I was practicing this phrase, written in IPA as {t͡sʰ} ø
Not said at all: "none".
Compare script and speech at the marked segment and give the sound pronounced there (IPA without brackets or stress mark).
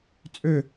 t͡sʼ